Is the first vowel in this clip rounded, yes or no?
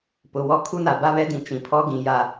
yes